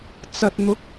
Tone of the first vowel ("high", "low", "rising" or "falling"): low